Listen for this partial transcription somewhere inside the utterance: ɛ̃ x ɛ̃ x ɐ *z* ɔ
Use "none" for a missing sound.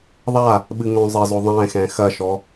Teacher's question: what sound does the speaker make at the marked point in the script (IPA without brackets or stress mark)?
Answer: ʃ